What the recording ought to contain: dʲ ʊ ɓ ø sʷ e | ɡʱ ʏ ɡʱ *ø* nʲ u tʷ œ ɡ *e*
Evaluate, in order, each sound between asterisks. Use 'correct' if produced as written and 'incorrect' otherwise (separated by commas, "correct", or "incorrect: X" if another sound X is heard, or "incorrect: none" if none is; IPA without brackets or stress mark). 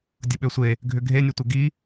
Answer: incorrect: e, incorrect: i